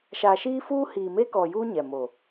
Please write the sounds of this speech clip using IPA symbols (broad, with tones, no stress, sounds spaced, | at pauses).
ʃ a˨ ʃ iː˦ f uː˦ h iː˨ m eː˦ k ɔ˨ j uː˦ ɲ ɛ˨ m o˨